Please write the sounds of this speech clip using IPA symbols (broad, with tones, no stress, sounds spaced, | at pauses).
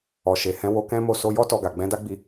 ɔ˨ ʃ e˨ h ɛ̃˨˦ w o˧ k ɛ̃˦ m o˦˨ s o˧ j ɔ˦ t ɔ˧ ɡ a˨ ɡ͡b ɛ̃˨˦ d a˦ ɡ͡b i˧